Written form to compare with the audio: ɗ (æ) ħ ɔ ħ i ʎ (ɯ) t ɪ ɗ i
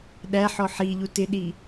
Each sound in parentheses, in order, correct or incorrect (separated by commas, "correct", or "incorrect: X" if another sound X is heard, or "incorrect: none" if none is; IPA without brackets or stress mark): correct, incorrect: u